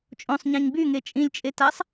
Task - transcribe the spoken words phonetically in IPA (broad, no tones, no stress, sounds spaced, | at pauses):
t͡ʃʼ õ sˤ ɲ ã ɲ b y ŋ e t͡ʃʼ ĩ lʲ t͡ʃʼ e t a sˤ